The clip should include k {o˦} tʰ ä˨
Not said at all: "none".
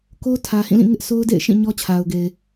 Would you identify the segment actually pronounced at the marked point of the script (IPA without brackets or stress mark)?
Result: o˦